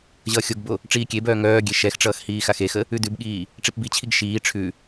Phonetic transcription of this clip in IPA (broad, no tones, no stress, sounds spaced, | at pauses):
ʑ ʌː xʲ o ɡ b o | ʈ͡ʂ iː kʲ e b œː ŋ œː ɡʲ e ʃ ɛ x ʈ͡ʂ ʌː x h iː x a x e x ə | ʉ d ʉ b ɠ iː | ʈ͡ʂ i p b i t͡ɕʰ i ɡ ʃ iː ʈ͡ʂʰ ʉ